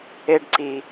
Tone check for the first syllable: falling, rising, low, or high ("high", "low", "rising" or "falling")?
high